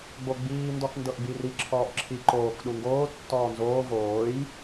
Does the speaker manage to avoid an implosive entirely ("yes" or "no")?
no